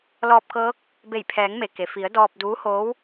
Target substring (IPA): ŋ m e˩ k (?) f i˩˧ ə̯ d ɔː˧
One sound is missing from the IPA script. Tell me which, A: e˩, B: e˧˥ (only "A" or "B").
A